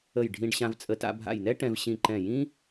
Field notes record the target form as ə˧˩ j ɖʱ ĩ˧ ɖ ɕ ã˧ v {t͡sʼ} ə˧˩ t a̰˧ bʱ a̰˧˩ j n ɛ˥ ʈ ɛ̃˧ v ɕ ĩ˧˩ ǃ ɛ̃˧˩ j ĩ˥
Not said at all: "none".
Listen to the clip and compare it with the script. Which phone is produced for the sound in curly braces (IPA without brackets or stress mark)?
t͡sʼ